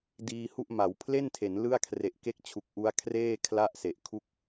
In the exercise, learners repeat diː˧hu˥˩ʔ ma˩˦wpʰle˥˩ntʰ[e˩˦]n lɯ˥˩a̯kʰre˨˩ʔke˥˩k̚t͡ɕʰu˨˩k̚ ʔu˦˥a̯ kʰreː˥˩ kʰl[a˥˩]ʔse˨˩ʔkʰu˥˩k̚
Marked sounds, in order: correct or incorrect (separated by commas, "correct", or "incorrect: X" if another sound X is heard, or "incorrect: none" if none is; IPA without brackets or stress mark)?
correct, correct